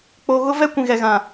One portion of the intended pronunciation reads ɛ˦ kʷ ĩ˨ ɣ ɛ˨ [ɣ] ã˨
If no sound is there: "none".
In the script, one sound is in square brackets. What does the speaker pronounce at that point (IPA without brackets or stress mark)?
ɣ